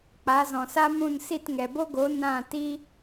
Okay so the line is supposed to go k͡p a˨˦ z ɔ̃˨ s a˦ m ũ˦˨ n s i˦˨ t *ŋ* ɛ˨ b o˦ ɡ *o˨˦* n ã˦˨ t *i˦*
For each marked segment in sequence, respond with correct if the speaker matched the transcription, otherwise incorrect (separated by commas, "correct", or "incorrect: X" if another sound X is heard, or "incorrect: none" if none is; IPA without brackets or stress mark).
correct, correct, correct